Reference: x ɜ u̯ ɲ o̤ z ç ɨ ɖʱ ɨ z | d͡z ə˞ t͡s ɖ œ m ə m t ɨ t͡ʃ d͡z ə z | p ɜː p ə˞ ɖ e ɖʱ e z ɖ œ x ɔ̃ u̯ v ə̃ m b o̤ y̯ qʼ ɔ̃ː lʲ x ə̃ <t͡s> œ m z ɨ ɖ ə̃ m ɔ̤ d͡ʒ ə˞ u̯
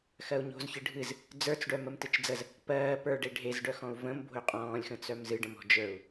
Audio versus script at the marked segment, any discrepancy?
no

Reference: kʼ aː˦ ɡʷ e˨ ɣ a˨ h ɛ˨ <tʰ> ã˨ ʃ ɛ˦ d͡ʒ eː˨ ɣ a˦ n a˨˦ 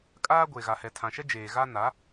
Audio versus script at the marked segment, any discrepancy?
no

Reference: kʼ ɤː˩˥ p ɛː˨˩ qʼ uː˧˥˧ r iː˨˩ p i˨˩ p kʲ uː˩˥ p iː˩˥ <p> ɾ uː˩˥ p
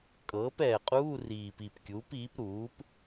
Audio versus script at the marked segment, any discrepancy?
no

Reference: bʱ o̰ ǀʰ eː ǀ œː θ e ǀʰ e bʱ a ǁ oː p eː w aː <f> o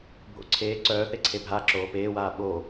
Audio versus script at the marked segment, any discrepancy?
yes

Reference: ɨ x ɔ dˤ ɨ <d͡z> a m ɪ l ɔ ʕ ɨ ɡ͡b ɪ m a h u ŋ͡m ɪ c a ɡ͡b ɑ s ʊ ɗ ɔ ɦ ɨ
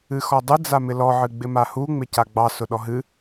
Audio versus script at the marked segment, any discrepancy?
no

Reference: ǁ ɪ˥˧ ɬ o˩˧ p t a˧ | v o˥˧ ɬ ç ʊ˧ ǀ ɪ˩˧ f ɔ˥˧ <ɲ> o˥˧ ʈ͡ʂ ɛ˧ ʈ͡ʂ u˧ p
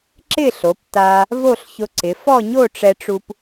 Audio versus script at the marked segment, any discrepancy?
no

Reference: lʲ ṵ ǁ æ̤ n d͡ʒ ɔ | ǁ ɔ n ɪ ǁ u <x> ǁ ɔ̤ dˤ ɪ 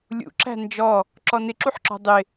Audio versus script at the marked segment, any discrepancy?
yes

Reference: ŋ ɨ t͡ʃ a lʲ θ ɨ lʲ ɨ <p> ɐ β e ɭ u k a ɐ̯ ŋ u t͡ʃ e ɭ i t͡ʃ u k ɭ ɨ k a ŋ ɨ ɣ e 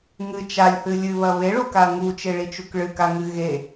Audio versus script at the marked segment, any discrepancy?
yes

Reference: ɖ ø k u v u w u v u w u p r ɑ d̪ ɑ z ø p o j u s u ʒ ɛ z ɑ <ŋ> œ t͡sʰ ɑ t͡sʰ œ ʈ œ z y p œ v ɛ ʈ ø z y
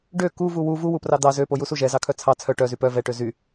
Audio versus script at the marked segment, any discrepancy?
yes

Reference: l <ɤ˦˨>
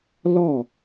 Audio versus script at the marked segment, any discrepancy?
yes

